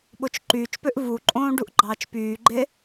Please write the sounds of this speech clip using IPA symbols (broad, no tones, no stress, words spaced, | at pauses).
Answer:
ɓot͡ʃǃyːt͡ʃpøʔ vuǃʼõː ɖuʔɡ͡ǃɑːt͡ʃpyːɡ͡ǃe